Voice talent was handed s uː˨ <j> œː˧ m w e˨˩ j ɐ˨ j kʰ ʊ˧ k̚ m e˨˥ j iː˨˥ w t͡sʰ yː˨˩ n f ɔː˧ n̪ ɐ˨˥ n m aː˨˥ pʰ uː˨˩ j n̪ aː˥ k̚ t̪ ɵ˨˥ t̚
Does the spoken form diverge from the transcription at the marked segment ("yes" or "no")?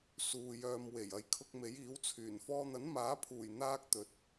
no